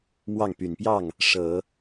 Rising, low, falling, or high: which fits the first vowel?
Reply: falling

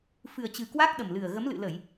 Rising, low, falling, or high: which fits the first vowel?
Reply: low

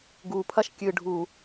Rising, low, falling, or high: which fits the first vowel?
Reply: low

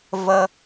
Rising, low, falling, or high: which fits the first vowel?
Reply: low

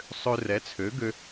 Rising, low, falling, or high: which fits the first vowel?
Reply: high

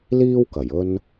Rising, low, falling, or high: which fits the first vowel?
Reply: high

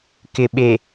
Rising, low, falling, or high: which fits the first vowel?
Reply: low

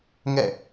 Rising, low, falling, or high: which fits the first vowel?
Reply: falling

